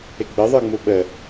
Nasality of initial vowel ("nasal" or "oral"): oral